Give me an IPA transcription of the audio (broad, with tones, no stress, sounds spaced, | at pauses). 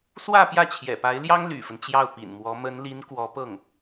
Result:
s w ä˥˧ p j ä˥˩ t͡ɕʰ j ɛ̰˨˩ p a˧˥ ɪ̯ l j ɑ˥ ŋ l y̰˨˩ f ə˦ n t͡ɕ j ɑ˥˩ ʊ̯ p ḭ˨˩ n m w ɔ˧˥ m ə˧˥ n l i˧˥ n k w ɔ˧˥ p ɤ˥˩ ŋ